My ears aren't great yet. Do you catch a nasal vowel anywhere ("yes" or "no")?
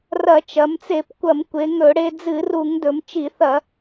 no